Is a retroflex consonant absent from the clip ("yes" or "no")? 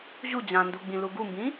yes